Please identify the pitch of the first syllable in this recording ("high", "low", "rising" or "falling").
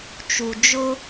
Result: low